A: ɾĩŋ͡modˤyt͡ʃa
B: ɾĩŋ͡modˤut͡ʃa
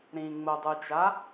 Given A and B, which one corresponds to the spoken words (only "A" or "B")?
B